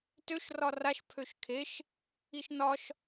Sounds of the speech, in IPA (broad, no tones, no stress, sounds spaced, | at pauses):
t ø ʃ r ɒ r a ʃ pʰ ø ʃ kʰ e ʃ | i ʃ n ɒ ʃ